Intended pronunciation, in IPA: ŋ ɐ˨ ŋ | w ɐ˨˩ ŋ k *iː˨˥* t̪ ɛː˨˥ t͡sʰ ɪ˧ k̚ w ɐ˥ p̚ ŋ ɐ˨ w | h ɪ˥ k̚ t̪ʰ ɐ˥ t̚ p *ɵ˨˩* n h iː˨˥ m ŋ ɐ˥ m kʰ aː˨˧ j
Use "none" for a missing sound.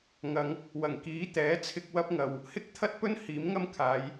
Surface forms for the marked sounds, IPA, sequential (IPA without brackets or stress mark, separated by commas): iː˨˥, ɵ˥